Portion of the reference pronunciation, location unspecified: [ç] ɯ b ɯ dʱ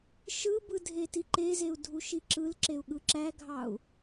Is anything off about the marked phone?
yes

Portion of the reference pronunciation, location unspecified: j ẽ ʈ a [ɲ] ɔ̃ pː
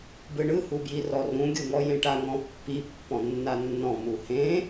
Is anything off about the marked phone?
yes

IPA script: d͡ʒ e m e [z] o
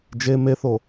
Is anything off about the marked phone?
yes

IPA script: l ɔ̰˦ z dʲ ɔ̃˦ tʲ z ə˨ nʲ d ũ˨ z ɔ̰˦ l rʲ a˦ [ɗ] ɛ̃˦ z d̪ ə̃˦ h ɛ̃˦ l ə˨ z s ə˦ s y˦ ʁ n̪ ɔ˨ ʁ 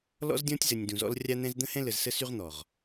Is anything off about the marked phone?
yes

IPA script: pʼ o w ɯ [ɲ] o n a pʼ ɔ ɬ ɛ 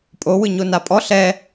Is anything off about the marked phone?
no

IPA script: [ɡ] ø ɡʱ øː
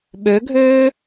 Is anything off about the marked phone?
yes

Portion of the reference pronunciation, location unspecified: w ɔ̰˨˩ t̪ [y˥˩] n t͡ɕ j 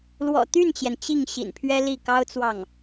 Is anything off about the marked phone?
no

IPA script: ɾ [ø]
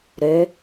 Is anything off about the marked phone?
no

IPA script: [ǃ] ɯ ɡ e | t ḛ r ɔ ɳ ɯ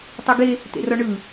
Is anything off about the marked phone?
yes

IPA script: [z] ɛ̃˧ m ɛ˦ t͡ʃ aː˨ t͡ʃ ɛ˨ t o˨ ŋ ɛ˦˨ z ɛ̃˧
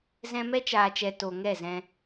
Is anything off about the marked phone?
no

